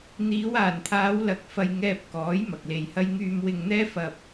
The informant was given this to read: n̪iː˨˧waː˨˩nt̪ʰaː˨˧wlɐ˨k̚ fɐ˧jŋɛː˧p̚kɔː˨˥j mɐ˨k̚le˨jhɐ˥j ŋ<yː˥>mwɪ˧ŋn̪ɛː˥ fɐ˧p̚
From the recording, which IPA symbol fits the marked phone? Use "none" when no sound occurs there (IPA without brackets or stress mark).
yː˧